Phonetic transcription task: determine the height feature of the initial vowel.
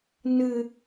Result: high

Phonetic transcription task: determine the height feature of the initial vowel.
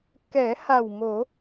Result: mid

